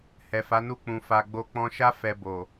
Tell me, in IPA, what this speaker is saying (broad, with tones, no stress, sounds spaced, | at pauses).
h ɛ˨ f a˨˦ n u˦˨ k͡p ũ˨ f a˧ ɡ͡b o˦ k͡p ɔ̃˧ ʃ a˦ f ɛ˧ b o˨